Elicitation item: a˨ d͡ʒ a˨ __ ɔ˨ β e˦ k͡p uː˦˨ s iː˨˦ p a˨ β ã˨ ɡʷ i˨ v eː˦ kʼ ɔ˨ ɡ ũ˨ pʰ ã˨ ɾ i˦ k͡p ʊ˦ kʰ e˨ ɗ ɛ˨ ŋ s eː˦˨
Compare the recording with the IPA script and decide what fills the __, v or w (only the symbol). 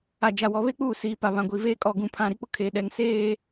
w